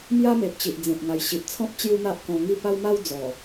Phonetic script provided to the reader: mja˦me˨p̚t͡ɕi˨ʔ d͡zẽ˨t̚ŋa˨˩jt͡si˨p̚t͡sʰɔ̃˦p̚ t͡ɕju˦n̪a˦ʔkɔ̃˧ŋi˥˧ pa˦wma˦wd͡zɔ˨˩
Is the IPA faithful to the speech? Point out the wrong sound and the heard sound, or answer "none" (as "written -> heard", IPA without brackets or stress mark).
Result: t͡s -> ɕ